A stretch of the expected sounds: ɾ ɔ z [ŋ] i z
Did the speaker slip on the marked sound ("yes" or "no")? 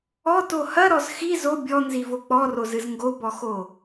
yes